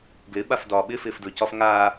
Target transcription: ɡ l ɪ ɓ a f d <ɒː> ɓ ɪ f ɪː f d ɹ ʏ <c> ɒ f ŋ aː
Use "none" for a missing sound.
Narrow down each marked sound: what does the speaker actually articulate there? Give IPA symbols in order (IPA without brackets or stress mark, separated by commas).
ɒː, c